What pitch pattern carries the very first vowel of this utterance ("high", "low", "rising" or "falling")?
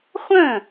falling